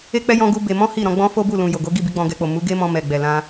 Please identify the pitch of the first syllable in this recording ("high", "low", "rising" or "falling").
high